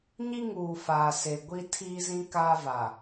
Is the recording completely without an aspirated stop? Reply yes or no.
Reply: no